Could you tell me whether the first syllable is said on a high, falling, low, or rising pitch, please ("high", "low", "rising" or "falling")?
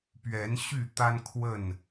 rising